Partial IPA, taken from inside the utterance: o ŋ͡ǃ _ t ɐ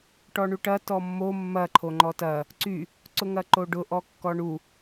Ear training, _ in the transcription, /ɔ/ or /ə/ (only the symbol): ɔ